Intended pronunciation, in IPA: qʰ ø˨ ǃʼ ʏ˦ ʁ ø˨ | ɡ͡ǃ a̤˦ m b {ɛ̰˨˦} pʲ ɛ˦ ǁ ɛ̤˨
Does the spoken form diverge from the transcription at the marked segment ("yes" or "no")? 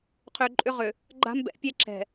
no